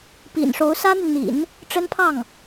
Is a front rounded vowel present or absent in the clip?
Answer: present